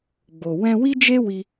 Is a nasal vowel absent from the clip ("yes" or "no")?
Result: no